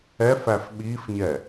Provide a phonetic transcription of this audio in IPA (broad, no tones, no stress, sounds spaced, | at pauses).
ɛ f æ f ɓ i f ɲ ɛ